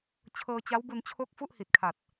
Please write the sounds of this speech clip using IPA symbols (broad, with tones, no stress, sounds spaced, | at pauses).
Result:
t͡ɕʰ ɤː˧ t͡ɕ a˦˥ w b u˧ n t͡ɕʰ o˥˩ k̚ f u˥˩ ʔ h i˨˩ t̚ kʰ a˨˩ t̚